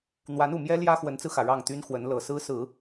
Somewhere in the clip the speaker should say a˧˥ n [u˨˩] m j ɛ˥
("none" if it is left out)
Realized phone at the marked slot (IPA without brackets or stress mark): u˨˩